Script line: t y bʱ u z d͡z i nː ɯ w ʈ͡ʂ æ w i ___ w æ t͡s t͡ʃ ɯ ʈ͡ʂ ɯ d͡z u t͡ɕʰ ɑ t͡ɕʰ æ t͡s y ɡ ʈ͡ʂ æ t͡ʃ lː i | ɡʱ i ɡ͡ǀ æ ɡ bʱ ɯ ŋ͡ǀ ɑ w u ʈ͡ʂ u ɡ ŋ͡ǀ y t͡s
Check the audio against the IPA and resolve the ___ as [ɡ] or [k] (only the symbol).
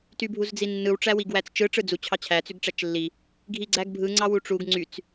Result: ɡ